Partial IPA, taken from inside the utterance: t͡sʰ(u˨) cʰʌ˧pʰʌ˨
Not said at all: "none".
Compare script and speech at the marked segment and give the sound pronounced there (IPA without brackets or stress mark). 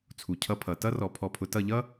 u˨